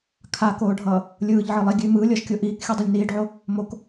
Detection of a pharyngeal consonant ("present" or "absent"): present